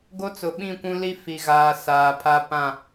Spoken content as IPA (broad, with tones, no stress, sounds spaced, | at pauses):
ɡ o˦ t͡s ʊ˨ ɓ ĩ˦˨ kʷ ũ˦ l i˦ f i˨ ɣ aː˨ s aː˨ pʰ a˦ p ã˦˨